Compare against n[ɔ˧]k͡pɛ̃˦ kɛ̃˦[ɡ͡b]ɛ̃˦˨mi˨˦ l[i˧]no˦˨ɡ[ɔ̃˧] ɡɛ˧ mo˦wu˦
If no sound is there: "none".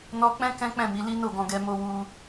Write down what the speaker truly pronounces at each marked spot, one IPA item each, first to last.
ɔ˧, k͡p, i˦, ɔ̃˧

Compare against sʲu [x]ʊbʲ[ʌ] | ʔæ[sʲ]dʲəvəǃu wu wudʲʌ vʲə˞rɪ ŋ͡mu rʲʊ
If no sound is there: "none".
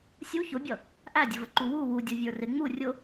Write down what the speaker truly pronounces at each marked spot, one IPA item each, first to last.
ç, ʌ, none

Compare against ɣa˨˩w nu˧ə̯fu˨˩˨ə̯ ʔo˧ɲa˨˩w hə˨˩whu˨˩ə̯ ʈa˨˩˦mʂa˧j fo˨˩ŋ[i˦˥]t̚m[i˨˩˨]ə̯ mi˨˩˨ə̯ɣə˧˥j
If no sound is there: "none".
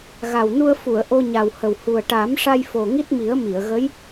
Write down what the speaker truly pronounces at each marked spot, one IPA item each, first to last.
i˦˥, i˨˩˦

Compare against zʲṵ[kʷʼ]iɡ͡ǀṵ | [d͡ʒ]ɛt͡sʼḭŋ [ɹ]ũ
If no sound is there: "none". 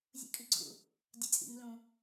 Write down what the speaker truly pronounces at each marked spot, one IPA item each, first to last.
kʼ, dʲ, l

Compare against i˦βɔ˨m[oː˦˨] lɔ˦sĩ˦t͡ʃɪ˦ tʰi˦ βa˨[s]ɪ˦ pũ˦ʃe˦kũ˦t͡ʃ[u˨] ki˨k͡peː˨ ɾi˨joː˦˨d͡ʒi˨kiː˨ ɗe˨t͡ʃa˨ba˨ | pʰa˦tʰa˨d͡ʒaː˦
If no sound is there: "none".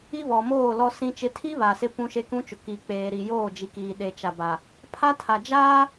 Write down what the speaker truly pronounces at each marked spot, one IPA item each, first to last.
oː˦˨, s, ʊ˨

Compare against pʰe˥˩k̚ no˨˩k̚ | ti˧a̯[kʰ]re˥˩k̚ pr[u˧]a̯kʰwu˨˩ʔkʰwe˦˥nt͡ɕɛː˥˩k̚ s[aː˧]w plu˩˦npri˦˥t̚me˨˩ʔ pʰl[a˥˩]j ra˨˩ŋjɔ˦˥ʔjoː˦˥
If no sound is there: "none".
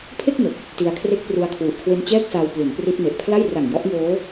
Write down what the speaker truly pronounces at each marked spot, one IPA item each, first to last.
kʰ, u˧, a˧, a˥˩

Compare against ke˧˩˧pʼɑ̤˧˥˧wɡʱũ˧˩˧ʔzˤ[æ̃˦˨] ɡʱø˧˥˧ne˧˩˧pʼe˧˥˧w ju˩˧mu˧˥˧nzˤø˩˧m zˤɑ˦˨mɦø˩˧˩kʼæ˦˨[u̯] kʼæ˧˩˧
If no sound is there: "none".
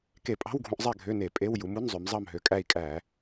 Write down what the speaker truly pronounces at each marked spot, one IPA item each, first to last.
æ˦˨, i̯

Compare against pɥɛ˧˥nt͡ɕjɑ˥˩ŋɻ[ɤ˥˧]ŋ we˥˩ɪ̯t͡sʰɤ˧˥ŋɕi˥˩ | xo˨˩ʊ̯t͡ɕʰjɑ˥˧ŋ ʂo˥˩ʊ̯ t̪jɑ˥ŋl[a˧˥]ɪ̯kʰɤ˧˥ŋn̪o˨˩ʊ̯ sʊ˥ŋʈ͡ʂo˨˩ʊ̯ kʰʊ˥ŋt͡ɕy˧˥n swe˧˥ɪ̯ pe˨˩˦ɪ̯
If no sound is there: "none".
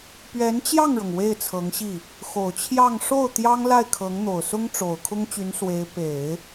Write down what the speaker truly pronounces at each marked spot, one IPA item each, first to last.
ɤ˩, a˥˩

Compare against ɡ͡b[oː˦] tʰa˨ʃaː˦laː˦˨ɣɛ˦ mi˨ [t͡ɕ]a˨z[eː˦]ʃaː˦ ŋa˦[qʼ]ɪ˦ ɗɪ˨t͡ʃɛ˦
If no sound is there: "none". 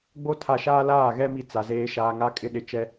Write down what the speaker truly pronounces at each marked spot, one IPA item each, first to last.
o˦, t͡s, eː˦, kʼ

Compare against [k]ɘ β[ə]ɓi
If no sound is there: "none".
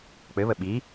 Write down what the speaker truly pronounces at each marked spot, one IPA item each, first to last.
k͡p, ə

